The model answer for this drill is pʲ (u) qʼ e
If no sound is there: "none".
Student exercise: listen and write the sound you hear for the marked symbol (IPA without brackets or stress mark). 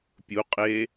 u